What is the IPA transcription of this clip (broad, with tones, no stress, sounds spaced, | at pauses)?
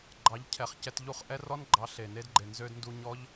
ɡ͡ǃ ɑ˨˦ ʎ cʰ ɛ˨ χ c ɛ˧ t ʎ u˦˨ χ ʔ ɛ˦ r ɔ˦ n ɡ͡ǃ ɑ˨˦ ɬ e˨ n e˧ d ɡ͡ǃ e˨ n z ø˧ d n d u˧ ɲ ɔ˦ ʎ